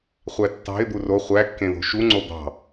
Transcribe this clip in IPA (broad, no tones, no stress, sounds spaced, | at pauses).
χʷ æ tː ɑ̤ ɪ̯ d̪ u r o χʷ æ kː ẽ ð o̤ ʃ u ŋ͡ǀ o d̪ ɑ̤